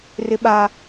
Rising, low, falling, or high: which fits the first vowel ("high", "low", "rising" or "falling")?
high